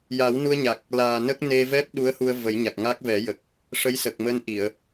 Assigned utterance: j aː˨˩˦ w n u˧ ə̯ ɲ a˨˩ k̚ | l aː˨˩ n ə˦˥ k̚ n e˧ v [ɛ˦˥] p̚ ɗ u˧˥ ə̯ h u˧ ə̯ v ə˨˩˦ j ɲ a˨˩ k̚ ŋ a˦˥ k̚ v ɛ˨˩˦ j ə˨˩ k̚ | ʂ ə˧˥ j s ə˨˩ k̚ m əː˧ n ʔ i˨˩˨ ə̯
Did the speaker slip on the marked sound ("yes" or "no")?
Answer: no